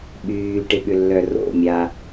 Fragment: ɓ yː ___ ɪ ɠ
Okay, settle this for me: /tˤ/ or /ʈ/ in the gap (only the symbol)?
ʈ